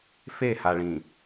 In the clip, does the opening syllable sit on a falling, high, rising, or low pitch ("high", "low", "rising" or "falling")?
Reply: falling